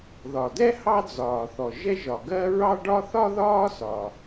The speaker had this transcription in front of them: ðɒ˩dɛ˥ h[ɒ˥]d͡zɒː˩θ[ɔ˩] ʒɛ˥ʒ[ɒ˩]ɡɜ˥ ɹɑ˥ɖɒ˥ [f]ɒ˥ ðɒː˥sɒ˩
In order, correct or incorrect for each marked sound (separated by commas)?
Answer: incorrect, correct, correct, incorrect